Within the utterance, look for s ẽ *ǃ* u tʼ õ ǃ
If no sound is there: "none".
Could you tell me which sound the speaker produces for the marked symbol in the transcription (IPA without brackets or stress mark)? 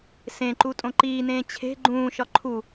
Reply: ǃ